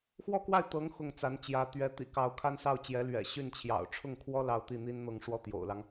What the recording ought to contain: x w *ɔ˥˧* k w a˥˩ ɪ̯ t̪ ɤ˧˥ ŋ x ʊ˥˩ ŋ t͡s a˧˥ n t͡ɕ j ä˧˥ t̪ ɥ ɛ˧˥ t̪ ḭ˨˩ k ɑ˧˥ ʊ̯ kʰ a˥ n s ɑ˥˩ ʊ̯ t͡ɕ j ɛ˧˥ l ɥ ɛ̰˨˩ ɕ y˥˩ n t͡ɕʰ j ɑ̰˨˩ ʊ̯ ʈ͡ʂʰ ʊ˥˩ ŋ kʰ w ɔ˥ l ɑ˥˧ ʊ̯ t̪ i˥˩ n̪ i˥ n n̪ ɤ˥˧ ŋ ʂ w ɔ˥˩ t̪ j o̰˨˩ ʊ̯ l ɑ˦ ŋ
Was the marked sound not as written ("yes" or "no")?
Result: no